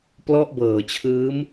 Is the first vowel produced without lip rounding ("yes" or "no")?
no